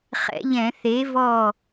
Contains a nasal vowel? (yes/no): yes